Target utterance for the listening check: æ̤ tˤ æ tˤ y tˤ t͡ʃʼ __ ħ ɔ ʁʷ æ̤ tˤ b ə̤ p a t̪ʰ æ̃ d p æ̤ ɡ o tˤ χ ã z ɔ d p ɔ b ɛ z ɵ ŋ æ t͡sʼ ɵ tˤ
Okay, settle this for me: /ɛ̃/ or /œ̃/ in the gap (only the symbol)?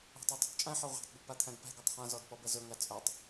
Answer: ɛ̃